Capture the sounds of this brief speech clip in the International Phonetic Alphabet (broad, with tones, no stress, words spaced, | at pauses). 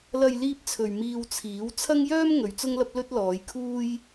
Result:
lɐ˨j liː˧p̚t͡sʰɵ˨ɥ miː˧wt͡sʰiː˨˥w t͡sʰɐ˥ŋjœː˥m ŋɵ˨˧ɥt͡sʊ˥ŋlɐ˥p̚lɵ˥t̚ lɔː˨˧jkʰuː˥j